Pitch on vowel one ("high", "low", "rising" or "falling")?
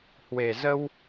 low